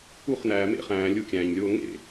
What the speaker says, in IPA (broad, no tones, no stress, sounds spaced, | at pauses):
u χ n æː m ḛ χ æ̃ː lʲ u kʲ æ̃ː ɲ lʲ oː ŋ ḛ